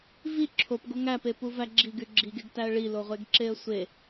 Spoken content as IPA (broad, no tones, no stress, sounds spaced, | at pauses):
v i ǁʰ o p ɡ o ŋ æ p e p u v æ ɡ͡ǁ i ɡ y ɡ͡ǁ i ɡ e ɡ t æ ə̯ ɭ i l o ʁʷ e ɡ ǁ e ə̯ sʷ e